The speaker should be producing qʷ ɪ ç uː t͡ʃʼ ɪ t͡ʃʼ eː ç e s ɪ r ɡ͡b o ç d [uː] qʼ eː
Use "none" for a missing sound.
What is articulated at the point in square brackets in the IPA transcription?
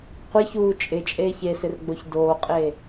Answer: oː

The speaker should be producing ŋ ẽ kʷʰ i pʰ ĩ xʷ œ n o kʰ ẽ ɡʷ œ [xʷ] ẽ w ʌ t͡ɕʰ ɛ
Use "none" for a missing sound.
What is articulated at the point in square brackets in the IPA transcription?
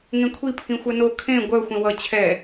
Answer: xʷ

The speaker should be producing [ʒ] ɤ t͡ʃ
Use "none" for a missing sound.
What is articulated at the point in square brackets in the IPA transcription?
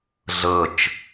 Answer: ɮ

